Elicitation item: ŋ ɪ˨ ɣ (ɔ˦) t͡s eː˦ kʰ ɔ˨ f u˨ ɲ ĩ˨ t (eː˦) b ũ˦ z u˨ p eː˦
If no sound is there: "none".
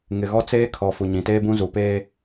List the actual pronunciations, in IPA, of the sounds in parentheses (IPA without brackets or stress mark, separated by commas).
ɔ˦, eː˦